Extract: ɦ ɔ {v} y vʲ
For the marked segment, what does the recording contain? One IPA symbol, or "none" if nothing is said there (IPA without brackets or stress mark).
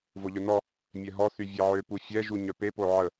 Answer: θ